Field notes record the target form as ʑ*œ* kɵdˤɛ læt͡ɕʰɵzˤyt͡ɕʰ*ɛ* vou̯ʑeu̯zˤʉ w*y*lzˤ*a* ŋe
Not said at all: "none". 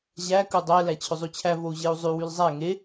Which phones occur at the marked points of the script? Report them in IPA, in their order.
æ, æ, y, æ

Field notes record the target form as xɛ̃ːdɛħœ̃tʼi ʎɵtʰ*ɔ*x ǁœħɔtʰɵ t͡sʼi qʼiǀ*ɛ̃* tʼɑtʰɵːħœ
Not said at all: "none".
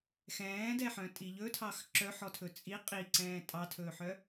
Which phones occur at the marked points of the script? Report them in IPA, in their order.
ɑ, ɛ̃ː

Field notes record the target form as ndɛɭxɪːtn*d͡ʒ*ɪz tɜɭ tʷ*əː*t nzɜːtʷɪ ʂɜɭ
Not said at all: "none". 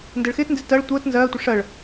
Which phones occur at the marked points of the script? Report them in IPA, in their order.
d, əː

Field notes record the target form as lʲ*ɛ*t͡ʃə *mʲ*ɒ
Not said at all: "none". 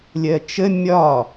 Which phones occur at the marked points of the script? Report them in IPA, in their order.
ɜ, mʲ

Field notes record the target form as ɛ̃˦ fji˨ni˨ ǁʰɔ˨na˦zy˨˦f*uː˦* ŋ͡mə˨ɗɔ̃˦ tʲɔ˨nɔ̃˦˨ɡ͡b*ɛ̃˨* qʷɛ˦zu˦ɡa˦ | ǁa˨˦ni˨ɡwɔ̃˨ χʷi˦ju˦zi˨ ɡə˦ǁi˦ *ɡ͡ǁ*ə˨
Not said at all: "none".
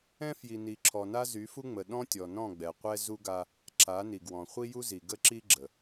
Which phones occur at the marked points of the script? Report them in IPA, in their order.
u˦, ɛ˨, ɡ͡ǁ

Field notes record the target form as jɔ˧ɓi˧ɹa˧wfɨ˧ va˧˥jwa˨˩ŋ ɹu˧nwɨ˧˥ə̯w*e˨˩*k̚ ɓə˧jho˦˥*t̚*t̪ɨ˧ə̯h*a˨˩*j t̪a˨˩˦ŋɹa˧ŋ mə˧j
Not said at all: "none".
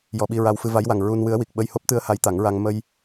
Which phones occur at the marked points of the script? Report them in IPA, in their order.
i˨˩, p̚, a˧˥

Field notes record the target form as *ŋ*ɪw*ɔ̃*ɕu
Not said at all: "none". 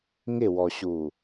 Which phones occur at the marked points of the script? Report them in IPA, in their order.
ŋ, ɔ

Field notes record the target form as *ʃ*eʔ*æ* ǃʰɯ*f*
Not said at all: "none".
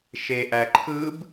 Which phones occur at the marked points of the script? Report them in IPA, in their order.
ʃ, æ, b

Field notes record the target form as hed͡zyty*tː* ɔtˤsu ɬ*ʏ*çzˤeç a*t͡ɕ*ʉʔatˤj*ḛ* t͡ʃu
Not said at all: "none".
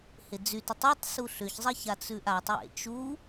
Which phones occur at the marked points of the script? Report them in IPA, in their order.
tˤ, ʏ, t͡s, ḛ

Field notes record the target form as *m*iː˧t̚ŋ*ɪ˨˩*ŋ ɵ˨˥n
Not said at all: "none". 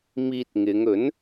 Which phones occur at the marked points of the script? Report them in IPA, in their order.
m, ɪ˨˧

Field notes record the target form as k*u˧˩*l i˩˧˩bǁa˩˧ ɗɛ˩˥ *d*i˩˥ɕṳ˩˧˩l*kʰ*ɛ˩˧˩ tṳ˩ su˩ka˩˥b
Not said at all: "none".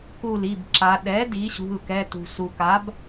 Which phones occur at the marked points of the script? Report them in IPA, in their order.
u˧˩, d, k

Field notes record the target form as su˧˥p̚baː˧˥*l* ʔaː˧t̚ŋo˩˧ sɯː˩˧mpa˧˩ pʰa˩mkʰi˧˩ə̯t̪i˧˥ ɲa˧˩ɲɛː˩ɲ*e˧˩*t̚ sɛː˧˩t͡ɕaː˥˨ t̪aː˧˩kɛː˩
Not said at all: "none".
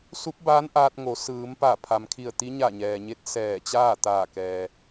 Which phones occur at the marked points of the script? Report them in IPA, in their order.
n, e˧

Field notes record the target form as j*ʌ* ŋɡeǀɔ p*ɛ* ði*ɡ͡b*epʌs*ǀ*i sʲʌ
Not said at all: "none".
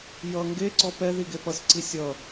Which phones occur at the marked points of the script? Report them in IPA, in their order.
ʌ, ɛ, ɡ, ǀ

